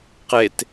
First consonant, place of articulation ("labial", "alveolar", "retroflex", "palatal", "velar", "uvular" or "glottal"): uvular